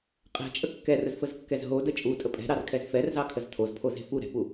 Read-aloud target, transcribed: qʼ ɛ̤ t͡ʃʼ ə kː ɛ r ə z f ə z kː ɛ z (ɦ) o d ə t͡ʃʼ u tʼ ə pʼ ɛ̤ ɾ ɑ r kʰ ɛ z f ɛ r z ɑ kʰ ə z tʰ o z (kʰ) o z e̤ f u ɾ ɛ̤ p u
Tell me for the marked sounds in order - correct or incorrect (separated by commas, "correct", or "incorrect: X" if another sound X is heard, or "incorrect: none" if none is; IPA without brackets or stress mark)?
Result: correct, incorrect: pʰ